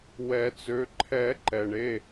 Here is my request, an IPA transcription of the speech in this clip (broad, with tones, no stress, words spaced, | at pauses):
wɛ˨˩˦t͡sø˩˧˩ ǃʰɛ˨˩˦ ǃɛ˩ɳe˩˧˩